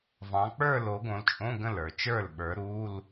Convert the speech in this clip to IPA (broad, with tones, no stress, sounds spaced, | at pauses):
v ɑ̃˨˦ k͡p ə˞˥˧ l o˨˦ ɡ õ˨˦ l t͡ʃʼ õ˧˥˧ ɡ ə̃˥˩ l ə˞˨˩ t͡ʃ ə˞˥˩ l ɓ ə˞˨˦ ɾ u˧˥˧ l